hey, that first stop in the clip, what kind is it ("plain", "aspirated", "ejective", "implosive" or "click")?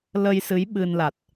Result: implosive